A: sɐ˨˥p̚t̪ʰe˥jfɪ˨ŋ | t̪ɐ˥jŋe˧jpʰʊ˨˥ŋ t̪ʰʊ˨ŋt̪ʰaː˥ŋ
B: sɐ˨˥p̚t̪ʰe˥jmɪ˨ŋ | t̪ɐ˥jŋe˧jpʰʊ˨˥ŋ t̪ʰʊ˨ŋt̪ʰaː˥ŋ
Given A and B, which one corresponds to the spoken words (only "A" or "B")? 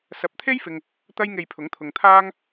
A